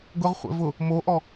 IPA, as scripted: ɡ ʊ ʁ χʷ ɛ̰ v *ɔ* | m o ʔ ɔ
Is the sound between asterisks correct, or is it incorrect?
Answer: incorrect